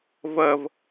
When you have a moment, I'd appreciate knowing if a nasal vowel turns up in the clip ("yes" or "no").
no